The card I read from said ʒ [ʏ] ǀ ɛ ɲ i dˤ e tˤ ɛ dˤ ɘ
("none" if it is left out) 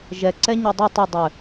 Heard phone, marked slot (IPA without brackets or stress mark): ɛ